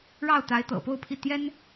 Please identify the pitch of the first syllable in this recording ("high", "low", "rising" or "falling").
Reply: falling